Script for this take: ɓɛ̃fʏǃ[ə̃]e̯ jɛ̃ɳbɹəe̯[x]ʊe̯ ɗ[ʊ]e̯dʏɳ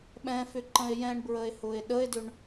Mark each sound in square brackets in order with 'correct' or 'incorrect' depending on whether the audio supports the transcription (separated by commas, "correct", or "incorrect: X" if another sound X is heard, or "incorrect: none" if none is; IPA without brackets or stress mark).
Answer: correct, incorrect: h, incorrect: ə